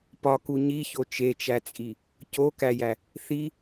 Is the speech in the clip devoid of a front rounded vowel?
yes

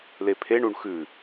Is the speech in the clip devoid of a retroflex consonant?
no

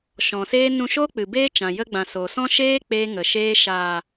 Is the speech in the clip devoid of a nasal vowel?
no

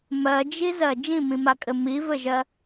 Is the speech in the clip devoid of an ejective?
no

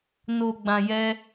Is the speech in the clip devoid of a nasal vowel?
no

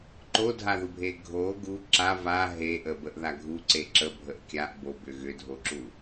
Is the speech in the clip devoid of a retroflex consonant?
yes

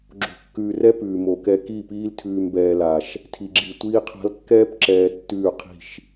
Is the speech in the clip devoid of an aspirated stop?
no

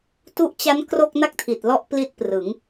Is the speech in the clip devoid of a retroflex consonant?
yes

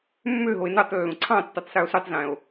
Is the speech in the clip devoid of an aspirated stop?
no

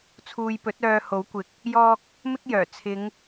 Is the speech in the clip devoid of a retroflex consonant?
yes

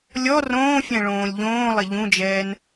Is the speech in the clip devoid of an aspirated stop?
yes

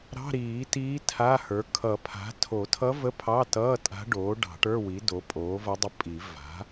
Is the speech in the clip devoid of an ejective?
no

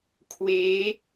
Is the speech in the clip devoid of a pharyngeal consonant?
yes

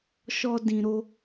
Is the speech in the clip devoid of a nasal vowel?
no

